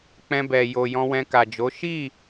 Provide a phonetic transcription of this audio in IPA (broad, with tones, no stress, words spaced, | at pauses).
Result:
k͡pɛ̃˧bɛ˨ jo˨ jɔ̃˧wɛ̃˧ka˨d͡ʒo˨˦ ʃi˦˨